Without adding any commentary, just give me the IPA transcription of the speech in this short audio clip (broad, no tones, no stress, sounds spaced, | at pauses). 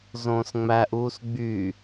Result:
z õː s ŋ͡m æ ʔ uː s ɡ͡b y